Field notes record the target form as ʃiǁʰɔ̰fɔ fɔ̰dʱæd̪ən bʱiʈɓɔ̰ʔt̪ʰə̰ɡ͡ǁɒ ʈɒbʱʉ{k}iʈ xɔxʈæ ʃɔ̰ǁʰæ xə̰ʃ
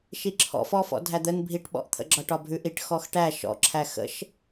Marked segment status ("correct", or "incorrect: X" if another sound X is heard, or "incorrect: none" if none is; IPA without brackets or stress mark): incorrect: ʔ